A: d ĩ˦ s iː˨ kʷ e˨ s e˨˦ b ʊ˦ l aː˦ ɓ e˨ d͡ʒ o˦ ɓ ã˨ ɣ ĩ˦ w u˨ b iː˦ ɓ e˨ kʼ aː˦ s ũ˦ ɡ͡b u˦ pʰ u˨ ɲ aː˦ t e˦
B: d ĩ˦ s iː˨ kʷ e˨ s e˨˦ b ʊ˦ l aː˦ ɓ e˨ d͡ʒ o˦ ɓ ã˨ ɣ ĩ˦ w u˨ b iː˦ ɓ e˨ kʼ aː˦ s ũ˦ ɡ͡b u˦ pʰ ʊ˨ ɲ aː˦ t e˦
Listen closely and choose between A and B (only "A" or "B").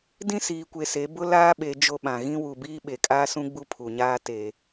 A